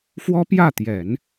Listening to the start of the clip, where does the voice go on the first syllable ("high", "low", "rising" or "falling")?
high